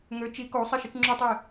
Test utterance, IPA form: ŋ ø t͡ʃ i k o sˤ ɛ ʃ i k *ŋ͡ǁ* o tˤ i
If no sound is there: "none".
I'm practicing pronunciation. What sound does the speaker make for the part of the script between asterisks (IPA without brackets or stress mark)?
ŋ͡ǁ